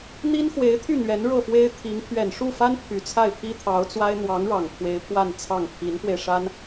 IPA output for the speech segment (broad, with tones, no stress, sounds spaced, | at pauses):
n̪ i˥ n x w e˧˥ ɪ̯ t̪ʰ y˥˩ n̪ ɥ ɛ˧˥ n ɻ ɤ˥˩ f w e˥ ɪ̯ t̪ʰ i˧˥ ŋ pʰ ɥ ɛ˨˩ n ʂ u˥˩ f a˥ n pʰ y˨˩ t͡sʰ a˥˩ ɪ̯ pʰ i˥ t̪ʰ ɑ˧˥ ʊ̯ t͡s w a˥ ɪ̯ n̪ w ɑ˧˥ ŋ ɻ ɑ˨˩ ŋ kʰ w e˧˥ ɪ̯ pʰ w a˥˧ n t͡sʰ ɑ˥˩ ŋ pʰ i˧˥ n f w e˧ ɪ̯ ʂ a˥ n